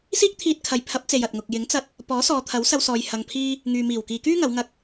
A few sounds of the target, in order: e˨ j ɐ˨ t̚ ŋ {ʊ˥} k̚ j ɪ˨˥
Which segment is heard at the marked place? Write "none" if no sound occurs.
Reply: ʊ˨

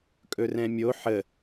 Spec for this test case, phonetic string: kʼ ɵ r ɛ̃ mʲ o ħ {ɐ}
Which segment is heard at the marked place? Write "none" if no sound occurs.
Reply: ə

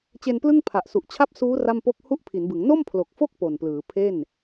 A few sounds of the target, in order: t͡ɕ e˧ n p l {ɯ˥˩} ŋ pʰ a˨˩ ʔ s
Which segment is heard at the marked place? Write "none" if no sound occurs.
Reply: ɯ˥˩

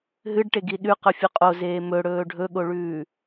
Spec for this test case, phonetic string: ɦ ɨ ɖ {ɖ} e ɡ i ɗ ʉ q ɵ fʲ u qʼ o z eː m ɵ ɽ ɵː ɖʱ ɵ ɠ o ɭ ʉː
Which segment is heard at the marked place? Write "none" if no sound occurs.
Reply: ʈ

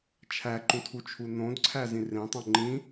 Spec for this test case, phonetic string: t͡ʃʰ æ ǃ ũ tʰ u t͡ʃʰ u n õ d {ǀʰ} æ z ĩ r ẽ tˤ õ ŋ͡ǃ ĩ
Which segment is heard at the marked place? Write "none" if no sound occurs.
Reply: ǀʰ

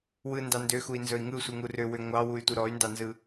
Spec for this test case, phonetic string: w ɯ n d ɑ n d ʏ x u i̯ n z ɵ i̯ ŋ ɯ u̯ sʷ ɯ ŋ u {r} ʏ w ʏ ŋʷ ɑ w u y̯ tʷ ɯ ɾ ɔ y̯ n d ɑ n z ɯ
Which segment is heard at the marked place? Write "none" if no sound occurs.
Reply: r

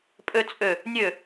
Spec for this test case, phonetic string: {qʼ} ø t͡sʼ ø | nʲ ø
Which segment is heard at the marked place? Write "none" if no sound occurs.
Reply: pʼ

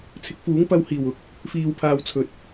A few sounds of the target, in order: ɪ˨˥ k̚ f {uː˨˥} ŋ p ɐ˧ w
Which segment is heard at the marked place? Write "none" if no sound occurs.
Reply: uː˨˥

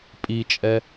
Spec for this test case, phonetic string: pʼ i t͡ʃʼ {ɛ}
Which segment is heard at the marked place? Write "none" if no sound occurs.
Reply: ɛ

